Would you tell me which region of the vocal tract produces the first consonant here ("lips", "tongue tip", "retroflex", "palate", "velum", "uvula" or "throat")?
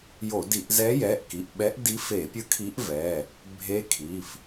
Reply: palate